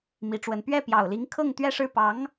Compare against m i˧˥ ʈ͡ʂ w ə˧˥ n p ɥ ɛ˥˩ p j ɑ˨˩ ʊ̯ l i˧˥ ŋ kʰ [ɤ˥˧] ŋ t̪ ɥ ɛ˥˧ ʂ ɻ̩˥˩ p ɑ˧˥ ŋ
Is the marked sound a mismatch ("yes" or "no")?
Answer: no